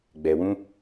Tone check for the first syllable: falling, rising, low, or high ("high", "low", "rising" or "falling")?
low